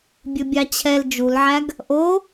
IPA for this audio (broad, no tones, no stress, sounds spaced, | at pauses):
bʲ ɵ bʲ ɑ t͡ɕʰ ɛ l d͡ʒ u l ʕ æ ɡ | ʔ o